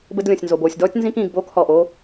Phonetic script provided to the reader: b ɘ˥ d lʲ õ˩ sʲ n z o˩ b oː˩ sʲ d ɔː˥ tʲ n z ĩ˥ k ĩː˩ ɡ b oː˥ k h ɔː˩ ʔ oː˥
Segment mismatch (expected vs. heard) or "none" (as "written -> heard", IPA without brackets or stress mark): none